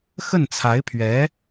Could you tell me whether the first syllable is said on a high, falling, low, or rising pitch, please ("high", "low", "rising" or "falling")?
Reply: falling